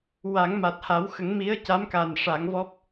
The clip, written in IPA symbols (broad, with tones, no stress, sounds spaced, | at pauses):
w a˨˩˦ ŋ m a˨˩ t̚ h a˨˩˦ w x ə˨˩˦ ŋ m i˧˥ ə̯ c a˧˥ m k a˨˩ n ʂ a˨˩˦ ŋ v ɔ˦˥ p̚